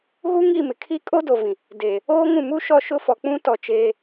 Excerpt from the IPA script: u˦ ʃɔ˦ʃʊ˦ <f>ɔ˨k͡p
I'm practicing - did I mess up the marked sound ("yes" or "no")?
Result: no